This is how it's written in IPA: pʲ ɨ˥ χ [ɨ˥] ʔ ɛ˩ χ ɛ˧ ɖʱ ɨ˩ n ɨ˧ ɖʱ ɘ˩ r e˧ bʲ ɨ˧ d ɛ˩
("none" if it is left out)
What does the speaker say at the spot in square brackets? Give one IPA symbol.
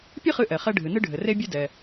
ɨ˧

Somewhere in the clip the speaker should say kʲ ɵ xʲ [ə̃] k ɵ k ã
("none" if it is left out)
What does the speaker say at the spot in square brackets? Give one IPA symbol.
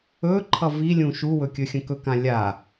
ə̃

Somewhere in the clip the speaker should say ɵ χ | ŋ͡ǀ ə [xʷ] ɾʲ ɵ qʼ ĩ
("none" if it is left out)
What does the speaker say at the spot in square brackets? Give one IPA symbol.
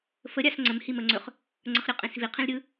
χ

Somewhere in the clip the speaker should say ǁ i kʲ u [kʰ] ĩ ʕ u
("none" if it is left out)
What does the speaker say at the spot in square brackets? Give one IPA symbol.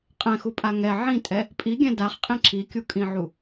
kʼ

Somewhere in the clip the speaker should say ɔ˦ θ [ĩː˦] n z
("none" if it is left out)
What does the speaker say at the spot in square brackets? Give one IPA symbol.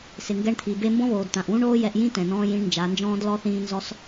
ĩː˦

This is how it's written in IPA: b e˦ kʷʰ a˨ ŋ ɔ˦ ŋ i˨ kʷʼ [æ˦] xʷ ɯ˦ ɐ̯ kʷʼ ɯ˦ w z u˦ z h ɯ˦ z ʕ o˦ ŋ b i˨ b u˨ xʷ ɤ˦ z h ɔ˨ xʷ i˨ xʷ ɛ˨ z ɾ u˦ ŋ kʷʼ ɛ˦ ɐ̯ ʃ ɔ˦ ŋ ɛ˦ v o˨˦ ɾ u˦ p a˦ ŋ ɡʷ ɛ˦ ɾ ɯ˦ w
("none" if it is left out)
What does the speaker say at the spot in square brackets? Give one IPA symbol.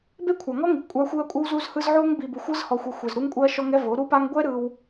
a˦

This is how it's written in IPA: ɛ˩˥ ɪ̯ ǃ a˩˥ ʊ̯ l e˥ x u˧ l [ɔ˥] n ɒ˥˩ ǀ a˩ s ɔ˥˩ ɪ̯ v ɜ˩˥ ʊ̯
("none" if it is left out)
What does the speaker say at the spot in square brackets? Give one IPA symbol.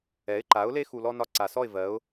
ɔ˥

